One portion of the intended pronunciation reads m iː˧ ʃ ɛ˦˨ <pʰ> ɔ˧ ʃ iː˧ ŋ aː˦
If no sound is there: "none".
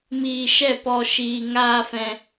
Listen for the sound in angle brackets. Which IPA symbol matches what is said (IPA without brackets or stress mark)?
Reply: p